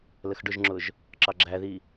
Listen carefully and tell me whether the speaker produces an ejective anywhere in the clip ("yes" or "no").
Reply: no